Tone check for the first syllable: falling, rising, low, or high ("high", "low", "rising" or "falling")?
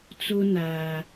high